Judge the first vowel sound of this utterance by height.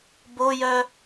mid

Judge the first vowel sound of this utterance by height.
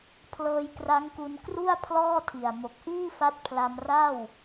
mid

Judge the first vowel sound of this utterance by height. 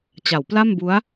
low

